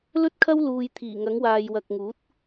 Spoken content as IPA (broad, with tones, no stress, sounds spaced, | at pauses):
l ɵ˥ t̚ kʰ ɐ˥ w l uː˨ j t̪ʰ iː˨˩ ŋ ɐ˨˥ ŋ w aː˨ j w ɐ˨ k̚ ŋ uː˨˥ t̚